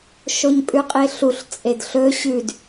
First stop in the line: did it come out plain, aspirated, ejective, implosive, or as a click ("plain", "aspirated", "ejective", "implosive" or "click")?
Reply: ejective